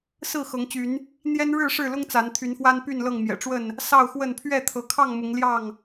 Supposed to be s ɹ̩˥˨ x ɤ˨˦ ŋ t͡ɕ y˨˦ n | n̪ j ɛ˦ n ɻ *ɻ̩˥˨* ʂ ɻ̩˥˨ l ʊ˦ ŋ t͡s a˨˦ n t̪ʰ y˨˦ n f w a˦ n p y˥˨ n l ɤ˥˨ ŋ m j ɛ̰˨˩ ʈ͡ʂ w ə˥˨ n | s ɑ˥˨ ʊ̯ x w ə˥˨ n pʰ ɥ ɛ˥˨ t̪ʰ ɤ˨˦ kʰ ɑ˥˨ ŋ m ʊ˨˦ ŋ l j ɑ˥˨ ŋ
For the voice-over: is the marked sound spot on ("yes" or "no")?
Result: yes